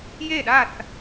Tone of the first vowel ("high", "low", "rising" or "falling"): falling